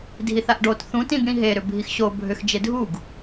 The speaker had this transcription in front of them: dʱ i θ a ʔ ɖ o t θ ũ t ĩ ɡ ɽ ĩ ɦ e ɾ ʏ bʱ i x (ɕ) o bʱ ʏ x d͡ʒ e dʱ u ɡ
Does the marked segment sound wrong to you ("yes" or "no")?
no